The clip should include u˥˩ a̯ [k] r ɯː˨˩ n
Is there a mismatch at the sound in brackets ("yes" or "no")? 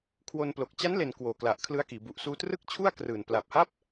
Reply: no